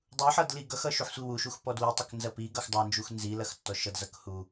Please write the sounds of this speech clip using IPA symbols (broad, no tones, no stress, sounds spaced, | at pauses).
dˤ u ħ ʌ d l i ɡ ʌ x ʌ ʃ u ħ sʷ i w u ʃ u x p ɔ d w i tˤ ʌ k n z ɐ p i ɡ ʌ x dˤ ɐ n d͡ʒ u x n z i l ɐ x tː ɔ ʃ ʌ d z ʌ k h u